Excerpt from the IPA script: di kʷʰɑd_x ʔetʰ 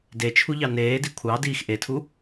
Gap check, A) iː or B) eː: A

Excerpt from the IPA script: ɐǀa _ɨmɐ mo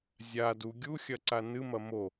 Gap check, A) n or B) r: A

